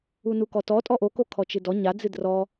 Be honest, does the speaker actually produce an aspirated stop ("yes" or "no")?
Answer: yes